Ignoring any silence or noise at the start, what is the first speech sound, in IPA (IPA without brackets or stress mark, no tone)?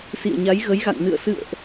s